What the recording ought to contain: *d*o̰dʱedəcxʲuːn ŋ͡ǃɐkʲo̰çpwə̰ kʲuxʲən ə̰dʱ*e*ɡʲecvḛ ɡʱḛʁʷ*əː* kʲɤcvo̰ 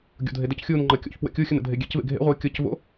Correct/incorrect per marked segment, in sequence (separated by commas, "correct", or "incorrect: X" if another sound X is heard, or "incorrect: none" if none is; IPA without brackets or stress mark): incorrect: ɡʲ, correct, correct